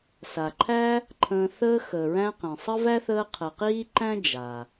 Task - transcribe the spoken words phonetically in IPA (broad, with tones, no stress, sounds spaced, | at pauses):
s a˩ ǃʰ æ˦ | ǃʰ ə̃ː˨ θ əː˦ x əː˩ ɹ æ̃˦ q ẽ˩ sˤ ə˥ v æ˥ θ əː˦ qʰ ə˨ q iː˥ ǃ æ̃˥ d͡ʒ a˩